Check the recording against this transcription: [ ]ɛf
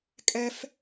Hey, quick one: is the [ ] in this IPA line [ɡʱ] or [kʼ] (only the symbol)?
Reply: kʼ